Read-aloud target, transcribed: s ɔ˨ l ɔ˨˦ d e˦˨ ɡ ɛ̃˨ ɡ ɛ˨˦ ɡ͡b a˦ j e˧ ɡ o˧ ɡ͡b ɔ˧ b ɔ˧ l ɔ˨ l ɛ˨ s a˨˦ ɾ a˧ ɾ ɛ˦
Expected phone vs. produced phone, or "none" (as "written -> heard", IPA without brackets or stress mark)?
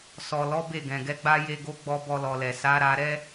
d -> b